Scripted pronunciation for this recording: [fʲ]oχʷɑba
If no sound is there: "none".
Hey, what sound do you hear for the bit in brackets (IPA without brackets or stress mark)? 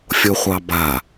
fʲ